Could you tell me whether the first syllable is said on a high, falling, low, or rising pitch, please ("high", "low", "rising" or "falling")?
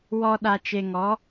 low